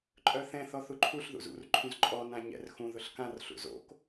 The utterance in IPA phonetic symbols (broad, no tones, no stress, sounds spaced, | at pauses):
ǃʼ œ θ ɛ̃ θ ɔ θ u ǃʰ u ɬ ð ṵ z ṵ r ǃʰ ũ z ǃʼ ɔ n ã ɲ ɛ̰ r x ũ ð ʊ ɬ k ã r ɬ ṵ z o̰ k